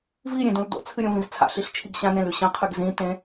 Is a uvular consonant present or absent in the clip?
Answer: present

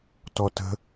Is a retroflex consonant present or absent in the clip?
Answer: absent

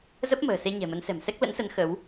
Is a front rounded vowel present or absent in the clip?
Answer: absent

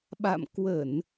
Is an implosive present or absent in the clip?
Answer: present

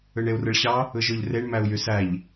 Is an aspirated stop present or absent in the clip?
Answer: absent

